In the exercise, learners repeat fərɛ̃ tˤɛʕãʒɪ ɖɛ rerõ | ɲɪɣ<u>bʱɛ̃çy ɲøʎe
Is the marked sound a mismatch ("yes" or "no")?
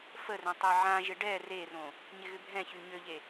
yes